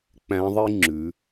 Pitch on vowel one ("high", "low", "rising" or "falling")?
rising